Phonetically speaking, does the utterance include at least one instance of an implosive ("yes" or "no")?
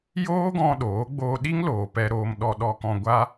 yes